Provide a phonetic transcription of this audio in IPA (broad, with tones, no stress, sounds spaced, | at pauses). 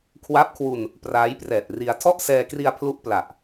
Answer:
kʰ w a˦˥ p̚ kʰ w u˧ n | p r aː˦˥ j p r ɛː˨˩ t̚ r i˧ a̯ tʰ ɔ˥˩ ʔ s ɛː˧ k r i˧ a̯ pʰ l u˦˥ ʔ p l a˨˩ ʔ